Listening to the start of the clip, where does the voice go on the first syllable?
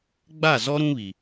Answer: falling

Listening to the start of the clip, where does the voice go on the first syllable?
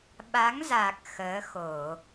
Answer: rising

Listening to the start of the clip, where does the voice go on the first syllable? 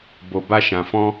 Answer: low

